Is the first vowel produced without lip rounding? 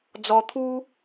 no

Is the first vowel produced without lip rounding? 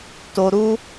no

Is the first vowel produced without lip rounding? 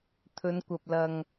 no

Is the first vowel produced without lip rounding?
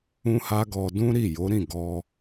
no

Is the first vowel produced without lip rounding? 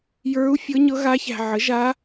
yes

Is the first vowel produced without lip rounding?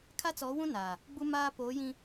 yes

